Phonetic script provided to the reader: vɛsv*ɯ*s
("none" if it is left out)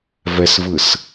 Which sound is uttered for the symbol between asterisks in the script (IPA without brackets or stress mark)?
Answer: ɯ